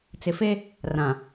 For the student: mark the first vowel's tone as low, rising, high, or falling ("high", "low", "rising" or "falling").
low